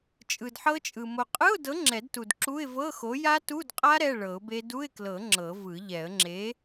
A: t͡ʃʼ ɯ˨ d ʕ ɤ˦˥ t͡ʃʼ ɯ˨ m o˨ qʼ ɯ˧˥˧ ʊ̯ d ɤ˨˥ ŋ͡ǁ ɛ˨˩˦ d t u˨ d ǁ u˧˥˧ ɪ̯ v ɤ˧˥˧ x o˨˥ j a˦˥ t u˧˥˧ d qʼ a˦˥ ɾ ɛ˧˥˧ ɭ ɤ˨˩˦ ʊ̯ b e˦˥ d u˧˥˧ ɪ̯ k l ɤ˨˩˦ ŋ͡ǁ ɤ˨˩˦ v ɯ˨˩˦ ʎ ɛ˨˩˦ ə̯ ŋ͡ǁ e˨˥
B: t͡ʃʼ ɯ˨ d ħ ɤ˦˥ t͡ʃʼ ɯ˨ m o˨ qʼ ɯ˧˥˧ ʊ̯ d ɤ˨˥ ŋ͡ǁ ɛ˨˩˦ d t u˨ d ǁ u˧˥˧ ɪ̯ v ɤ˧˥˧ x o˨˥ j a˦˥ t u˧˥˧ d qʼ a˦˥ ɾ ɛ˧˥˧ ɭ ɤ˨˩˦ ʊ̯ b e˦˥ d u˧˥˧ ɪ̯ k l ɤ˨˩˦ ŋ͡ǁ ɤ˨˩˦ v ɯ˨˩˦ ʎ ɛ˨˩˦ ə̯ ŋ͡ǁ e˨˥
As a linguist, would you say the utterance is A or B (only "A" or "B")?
B